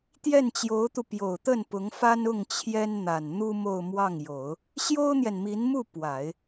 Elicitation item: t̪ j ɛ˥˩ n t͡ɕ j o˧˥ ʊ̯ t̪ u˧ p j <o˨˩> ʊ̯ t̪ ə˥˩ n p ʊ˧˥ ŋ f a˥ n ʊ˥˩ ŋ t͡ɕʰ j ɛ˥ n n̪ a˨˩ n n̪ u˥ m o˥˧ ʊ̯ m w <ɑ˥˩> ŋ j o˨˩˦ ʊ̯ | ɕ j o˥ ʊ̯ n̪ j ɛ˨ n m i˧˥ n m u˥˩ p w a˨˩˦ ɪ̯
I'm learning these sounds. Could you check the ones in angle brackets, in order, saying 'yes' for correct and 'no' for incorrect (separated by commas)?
yes, yes